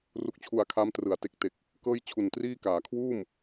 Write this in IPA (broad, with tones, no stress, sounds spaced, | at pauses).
r u˦˥ k̚ t͡ɕʰ u˧ a̯ kʰ a˦˥ m t r ɯ˩˦ a̯ t e˨˩ k̚ t e˨˩ k̚ | k ɤː˥˩ j t͡ɕʰ u˨˩ n t r iː˥˩ k aː˩˦ kʰ w uː˥˩ m